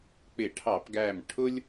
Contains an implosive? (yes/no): no